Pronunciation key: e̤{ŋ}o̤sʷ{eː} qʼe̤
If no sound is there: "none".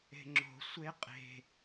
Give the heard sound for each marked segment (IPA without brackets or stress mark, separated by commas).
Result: ŋ͡ǁ, e